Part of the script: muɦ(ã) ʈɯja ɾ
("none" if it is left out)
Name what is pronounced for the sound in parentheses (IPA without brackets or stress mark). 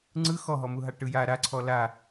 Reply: a